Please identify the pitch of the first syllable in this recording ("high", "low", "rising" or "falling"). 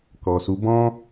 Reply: low